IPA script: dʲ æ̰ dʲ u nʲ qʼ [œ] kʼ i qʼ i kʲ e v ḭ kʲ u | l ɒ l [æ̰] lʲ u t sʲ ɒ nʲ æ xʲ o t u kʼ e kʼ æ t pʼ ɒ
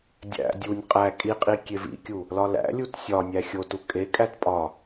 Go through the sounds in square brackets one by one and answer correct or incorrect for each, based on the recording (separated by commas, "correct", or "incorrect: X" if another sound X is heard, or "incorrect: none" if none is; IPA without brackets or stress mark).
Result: incorrect: æ, correct